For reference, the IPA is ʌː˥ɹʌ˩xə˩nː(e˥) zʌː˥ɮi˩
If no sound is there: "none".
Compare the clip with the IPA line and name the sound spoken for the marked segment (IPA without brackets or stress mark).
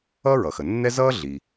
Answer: ɛ˥